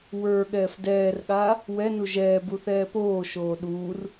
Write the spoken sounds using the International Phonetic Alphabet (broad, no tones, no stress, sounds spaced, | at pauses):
w ə˞ ɠ ɛː f d ɛː r ɠ aː | w ɛ n u ʒ ɛː b u θ ɛː p oː ʃ oː ɗ uː r